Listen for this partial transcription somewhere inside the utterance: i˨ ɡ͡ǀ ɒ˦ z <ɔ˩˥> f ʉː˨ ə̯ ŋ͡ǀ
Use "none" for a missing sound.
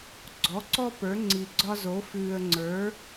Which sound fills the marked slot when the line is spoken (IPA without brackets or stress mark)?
o˩˥